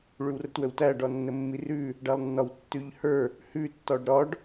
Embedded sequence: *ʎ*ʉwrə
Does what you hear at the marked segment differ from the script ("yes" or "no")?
yes